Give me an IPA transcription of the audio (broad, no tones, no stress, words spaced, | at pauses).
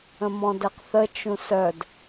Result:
ə̃mɔ̃dɛqθə t͡ʃũsœd